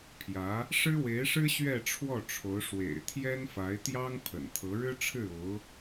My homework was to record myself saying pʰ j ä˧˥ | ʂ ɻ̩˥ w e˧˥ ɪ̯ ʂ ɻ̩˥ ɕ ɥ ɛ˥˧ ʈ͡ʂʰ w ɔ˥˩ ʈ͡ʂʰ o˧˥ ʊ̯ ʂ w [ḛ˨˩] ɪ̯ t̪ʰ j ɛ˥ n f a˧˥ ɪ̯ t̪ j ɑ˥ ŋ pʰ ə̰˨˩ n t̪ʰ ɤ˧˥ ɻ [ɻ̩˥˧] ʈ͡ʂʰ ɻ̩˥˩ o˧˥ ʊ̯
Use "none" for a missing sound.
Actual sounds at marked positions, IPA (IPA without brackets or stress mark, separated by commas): ḛ˨˩, ɻ̩˥